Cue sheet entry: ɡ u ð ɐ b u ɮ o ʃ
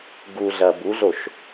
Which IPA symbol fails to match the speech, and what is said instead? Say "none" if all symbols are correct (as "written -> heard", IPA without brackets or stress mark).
ð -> ɮ